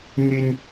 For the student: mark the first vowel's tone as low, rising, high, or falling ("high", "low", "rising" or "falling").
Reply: high